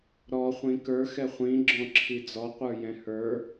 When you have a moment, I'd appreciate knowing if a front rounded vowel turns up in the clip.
no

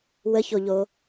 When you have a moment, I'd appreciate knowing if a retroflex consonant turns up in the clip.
no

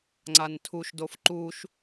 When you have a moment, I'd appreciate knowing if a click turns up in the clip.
yes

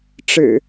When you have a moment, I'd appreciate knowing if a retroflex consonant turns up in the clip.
yes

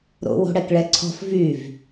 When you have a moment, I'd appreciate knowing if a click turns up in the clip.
yes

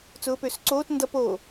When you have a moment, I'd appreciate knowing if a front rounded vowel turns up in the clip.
yes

